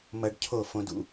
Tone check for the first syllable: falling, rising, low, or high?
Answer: high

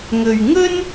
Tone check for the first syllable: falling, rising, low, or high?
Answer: low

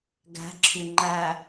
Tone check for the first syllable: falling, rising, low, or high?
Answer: rising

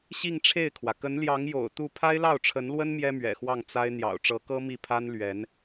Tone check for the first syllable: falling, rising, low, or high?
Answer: falling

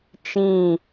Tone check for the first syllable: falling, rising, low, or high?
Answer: falling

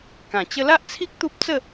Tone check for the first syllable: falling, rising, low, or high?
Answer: low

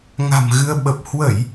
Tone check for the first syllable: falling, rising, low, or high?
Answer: low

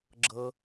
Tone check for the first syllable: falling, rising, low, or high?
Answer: low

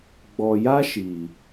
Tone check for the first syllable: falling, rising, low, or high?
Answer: low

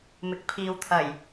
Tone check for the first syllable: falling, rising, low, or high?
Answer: low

